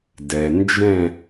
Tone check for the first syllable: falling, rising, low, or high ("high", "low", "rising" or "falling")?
low